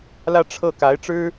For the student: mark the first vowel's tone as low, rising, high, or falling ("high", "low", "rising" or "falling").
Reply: falling